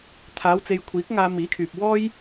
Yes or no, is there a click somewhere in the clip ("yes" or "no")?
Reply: no